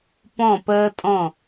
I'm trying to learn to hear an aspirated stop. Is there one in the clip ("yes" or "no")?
no